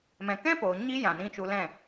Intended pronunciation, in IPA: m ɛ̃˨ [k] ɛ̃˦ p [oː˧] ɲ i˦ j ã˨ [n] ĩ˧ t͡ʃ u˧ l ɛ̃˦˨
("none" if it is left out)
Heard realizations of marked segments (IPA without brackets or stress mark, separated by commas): k, oː˨, n